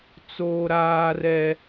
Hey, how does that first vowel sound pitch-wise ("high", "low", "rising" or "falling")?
high